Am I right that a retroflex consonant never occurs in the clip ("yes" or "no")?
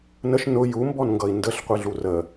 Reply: yes